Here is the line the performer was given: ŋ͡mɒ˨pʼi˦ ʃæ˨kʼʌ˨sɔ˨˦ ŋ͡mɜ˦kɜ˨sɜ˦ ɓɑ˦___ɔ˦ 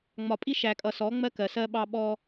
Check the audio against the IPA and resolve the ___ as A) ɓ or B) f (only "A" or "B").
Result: A